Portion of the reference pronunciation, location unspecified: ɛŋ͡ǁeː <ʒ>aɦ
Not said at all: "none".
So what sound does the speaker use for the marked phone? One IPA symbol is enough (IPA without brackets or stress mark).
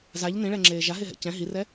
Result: ʒ